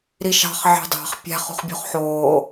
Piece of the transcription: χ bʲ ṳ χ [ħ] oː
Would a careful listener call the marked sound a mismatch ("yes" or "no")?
no